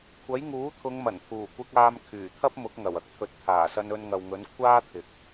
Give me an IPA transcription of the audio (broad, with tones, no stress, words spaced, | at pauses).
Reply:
kʷʰɐ˨˥jŋuː˨˥ t̪ʰʊ˨˧ŋmɐ˨˩npʰuː˨˩kʷɪ˧k̚ aː˧m kʰyː˨˩t̪ʰɐ˥p̚ mʊ˨˥k̚ŋɐ˨˩wɐ˥k̚ t̪ʰɵ˨˥t̚ t̪ʰaː˨˩sɐ˧n ɵ˧nŋɐ˨wŋɵ˨˥n kʷʰaː˥t̪ʰɪ˨k̚